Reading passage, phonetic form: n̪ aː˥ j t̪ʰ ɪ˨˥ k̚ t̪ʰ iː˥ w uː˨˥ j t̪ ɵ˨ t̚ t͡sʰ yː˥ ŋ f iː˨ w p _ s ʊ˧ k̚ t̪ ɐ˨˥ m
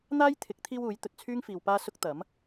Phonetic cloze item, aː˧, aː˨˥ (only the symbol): aː˧